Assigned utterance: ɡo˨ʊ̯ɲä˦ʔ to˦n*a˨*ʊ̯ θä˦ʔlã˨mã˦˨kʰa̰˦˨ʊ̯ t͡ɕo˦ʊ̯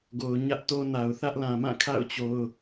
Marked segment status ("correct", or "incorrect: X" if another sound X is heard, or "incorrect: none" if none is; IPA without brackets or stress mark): correct